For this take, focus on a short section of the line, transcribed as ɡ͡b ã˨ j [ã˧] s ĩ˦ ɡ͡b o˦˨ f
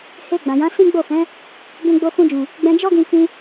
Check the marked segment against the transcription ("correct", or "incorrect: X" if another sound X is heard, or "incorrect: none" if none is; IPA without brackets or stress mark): incorrect: ã˨˦